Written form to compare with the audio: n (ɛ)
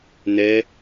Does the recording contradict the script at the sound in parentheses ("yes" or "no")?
no